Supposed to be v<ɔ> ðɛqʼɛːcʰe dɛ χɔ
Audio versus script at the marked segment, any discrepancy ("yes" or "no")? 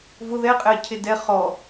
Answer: yes